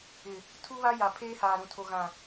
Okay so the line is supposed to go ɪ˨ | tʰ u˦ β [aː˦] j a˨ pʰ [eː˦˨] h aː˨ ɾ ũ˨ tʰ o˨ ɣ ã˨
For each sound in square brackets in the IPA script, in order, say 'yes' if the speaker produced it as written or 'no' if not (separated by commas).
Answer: no, no